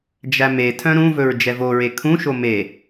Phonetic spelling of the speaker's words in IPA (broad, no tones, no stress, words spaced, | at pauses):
d͡ʒæmetʰœ̃ ɾũvɵɹ d͡ʒɛvoɹe kʰũʃo me